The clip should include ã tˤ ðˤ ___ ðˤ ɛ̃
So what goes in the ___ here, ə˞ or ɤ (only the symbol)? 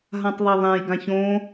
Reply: ə˞